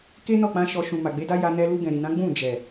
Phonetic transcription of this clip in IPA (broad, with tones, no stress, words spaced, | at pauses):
ke˦nɔ˦˨k͡pã˧ ʃɔ˧ ʃũ˨ma˨ɡ͡be˨˦da˦ ja˧nɛ˧ lu˧ɡɛ̃˨ɾi˨nã˨˦ ɡ͡bũ˦˨d͡ʒɛ˨